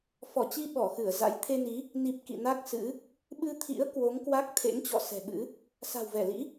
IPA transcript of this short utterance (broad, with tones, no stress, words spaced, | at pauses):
fɔ˧˩t͡ɕi˧ ɓɔ˧˩xɨ˧˩ə̯ za̰˧˥j t̪ʰe˧ni˨˦ | ni˨˩p̚ kḭ˧˨na˦˥k̚sɨ̰˧˥ | ɓɨ˧t̪ʰḭ˧˥ə̯ kwo˨˦ŋkwa˦˥k̚ t̪ʰḛ˧˥ŋt͡ɕɔ̰˧˨ sɛ̤˨˩ɓɨ̰˧˥ | sa̤˨˩wvɛ˧˩lḭ˧˥